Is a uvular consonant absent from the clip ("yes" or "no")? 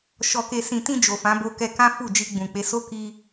yes